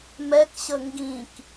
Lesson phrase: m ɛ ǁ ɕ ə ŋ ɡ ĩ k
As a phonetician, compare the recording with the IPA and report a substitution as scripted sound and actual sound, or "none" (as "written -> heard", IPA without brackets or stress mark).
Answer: ǁ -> k